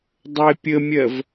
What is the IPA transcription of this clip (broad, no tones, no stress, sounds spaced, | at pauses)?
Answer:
dˤ ə e̯ pʲ ə mʲ ɜ v